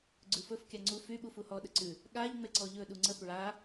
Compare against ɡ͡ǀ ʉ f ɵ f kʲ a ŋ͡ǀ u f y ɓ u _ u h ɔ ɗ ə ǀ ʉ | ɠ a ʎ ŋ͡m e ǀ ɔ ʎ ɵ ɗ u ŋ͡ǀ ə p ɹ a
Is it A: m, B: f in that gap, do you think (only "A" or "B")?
B